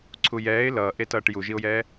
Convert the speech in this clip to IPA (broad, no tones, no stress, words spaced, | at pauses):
ǀʰujɛːɪ̯ lʌːʔetʌːʈ juʒiʊ̯jɛː